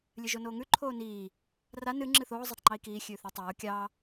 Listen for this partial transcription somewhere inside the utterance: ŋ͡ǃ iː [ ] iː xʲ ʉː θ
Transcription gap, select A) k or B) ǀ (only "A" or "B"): A